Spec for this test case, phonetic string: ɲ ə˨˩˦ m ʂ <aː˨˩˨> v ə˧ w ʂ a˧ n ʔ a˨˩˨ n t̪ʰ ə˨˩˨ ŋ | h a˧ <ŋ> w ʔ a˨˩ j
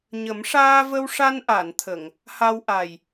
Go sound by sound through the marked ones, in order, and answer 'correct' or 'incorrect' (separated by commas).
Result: incorrect, incorrect